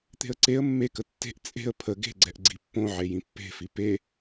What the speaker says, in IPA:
t̪e̤ə̯ǀeə̯ mːekə tːe̤ʔ t͡sʼe̤ə̯ pʰə ɡe̤ɡ͡ǀɛʔ ɡ͡ǀipːõ ʕejĩpːe̤fi pe

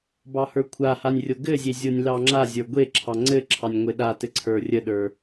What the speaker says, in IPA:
bɑhə˞kʷʰahanʲ rʲoɡɘzʲe zʲonʲlɑŋ͡ǁazʲə˞ ɡʷe ǁʰɑŋ͡ǀɘǁʰɑnʲ ŋʷeɗatɘ ǀʰə˞rʲəɗə˞

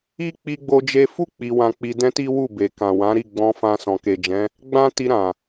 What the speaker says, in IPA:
i˦k͡pi˧ɡ͡bo˧ d͡ʒe˧fu˦ k͡pi˧wã˧k͡pi˧ dɛ̃˦ti˦wu˦˨be˨ kã˨wã˨˦ ɾi˦˨ɡ͡bɔ̃˧fã˧ sɔ̃˨ke˨d͡ʒɛ̃˨˦ | ɡ͡bã˦ ti˧ɾã˨

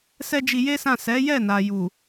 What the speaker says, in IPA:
sɛ˦d͡ʒi˧je˦sã˦˨ sɛ˨˦jɛ˦˨na˨ju˨

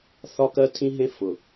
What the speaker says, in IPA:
θɒ˦kɜ˦ tʰĩ˦ɦẽ˦ fʊ˨

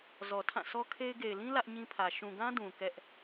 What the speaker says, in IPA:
zɔ˨tʰã˦˨sʰɔ˦kʰe˦ɪ̯ ɡe˨ɪ̯lĩ˦ lä˦ʔɲĩ˦pʰä˨ ʃũ˨ɡã˦ dũ˨ kɛ˦ʔ

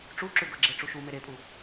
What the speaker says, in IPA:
ʈ͡ʂuǁʉɡɤɡ͡ǁe ʈ͡ʂuʃu meɾepʼu

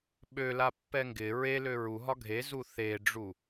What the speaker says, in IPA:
ɓølapːɛ ŋɡɪ ɹelø ɹuɦɒ ɡʱezu θeɖ͡ʐu

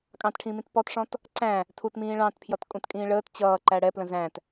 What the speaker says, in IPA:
kʼɑ̃tʈʰĩːmĩt pɔtʂɔ̃t | ǀæ̃ | tʰutmĩː ɭɑ̃tpʰjʌt kʼũtkʼĩːɭəːt t͡ɕʌː ǃæɽɛ plə̃zæ̃t

